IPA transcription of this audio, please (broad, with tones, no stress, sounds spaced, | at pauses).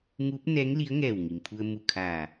ŋ uː˧˥ p̚ n ɛː˧˥ ŋ l i˧˥ ə̯ ŋ ɛː˧˩ w ŋ i˩ m pʰ u˧ ə̯ m u˧˩ kʰ a˧˩